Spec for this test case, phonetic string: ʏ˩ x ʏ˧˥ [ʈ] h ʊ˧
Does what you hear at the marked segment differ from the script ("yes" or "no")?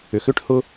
no